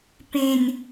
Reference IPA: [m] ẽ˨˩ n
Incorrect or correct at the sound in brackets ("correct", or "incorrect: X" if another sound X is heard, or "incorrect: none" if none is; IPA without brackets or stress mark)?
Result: incorrect: p